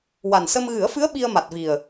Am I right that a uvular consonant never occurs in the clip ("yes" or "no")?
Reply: yes